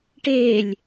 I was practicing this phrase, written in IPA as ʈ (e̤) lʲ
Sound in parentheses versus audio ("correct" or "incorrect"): incorrect